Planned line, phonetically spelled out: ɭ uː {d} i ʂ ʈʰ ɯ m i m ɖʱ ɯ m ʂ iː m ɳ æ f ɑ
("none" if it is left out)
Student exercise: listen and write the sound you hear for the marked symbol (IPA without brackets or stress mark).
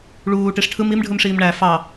ʈ